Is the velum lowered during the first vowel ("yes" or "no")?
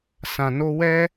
yes